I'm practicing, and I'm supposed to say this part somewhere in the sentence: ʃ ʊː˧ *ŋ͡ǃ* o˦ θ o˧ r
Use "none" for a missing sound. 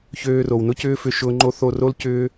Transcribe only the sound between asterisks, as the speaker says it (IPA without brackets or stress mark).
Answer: ŋ͡ǃ